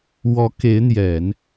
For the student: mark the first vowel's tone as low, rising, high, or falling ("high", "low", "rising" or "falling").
rising